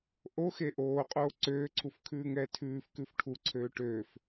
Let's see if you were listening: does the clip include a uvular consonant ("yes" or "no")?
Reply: yes